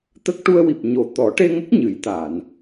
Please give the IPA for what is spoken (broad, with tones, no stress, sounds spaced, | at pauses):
t̪ ə˦˥ k̚ ʈ u˧ ə̯ w i˨˩ p̚ ɲ o˨˩ t̪ ɔ˨˩˦ ʈ e˧ ŋ ə˦˥ k̚ ɲ ɨ˨˩˦ j t̪ a˨˩˨ n